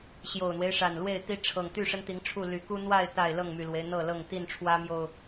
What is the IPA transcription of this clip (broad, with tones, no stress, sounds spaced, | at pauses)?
ɕ j o˨˩ ʊ̯ n̪ w e˦ ɪ̯ ʂ a˨˩ n l w e˥˨ ɪ̯ t̪ i˦ ʈ͡ʂʰ ɤ˨˩ ŋ t̪ y˥˨ ʂ ə˦ n t̪ i˨˦ ŋ ʈ͡ʂʰ u˥˨ l y˨˩ k u˦ n̪ w a˥˨ ɪ̯ t̪ a˥˨ ɪ̯ l ɤ˥˨ ŋ m y˨˩ l w e˦ ɪ̯ n̪ ɤ˥˨ l ɤ˥˨ ŋ t̪ i˥˨ n ʈ͡ʂʰ w ä˦ m j o˨˩ ʊ̯